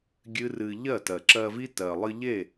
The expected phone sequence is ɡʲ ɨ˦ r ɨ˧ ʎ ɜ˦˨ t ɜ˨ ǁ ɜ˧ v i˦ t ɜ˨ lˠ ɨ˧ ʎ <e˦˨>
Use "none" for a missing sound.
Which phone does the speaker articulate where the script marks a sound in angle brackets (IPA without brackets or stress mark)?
e˦˨